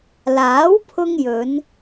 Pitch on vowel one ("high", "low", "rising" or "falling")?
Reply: rising